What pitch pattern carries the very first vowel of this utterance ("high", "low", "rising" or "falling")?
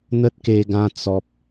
high